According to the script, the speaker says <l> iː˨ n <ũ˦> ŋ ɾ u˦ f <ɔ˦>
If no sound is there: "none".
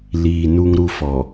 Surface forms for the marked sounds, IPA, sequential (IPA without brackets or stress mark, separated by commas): l, u˦, ɔ˨